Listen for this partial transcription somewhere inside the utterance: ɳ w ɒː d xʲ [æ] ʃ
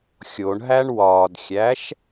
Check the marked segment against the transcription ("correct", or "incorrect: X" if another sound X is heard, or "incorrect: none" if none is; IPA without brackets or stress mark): correct